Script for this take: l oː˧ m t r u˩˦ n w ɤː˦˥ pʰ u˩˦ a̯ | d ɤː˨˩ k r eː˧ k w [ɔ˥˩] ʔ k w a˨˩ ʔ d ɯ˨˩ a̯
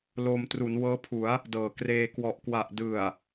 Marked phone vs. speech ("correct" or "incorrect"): incorrect